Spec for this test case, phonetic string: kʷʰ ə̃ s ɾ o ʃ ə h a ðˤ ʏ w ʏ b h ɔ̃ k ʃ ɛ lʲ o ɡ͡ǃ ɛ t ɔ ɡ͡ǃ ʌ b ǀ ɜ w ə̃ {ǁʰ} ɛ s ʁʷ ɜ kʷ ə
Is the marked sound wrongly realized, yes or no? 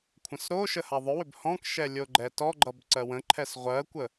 yes